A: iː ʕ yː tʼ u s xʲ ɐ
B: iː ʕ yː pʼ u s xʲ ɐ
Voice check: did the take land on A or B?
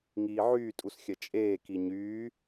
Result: A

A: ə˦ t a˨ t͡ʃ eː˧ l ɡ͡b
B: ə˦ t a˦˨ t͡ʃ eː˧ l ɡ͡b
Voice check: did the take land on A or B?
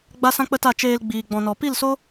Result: B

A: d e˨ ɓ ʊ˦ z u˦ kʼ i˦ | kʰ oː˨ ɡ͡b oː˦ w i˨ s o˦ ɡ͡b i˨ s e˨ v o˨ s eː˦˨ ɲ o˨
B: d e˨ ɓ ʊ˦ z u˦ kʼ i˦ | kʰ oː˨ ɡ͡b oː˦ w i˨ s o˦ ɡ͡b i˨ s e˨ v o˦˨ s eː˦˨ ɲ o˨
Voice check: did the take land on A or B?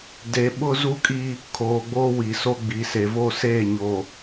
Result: B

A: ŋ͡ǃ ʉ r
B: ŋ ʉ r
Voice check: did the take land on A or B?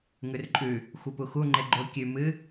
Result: B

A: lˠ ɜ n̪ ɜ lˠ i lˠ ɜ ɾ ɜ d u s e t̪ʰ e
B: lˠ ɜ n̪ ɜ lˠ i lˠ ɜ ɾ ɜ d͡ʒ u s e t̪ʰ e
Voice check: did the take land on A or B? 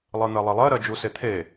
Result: B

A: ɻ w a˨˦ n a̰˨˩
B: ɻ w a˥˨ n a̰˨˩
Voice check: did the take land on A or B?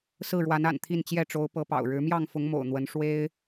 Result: A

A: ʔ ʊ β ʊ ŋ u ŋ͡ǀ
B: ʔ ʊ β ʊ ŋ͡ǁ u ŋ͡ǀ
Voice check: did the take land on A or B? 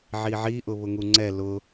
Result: A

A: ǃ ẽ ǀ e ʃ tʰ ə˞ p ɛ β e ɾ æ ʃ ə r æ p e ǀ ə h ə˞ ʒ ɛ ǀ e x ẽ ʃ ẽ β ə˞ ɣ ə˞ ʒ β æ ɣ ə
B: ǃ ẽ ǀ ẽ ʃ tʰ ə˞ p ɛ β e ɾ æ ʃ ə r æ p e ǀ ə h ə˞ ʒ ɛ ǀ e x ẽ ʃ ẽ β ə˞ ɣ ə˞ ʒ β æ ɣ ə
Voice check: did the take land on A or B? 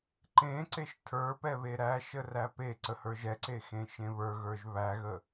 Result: A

